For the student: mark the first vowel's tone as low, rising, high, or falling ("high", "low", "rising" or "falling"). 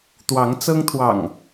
rising